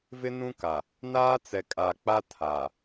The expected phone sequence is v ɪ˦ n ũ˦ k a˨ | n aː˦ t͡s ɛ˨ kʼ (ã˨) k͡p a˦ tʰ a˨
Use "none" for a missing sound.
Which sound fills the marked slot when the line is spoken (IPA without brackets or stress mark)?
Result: a˨